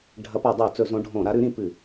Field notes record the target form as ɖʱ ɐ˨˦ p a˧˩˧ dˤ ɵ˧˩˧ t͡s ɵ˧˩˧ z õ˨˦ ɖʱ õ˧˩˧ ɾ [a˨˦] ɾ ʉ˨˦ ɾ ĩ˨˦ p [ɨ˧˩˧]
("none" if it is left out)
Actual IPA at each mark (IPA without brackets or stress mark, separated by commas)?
a˨˦, ɨ˧˩˧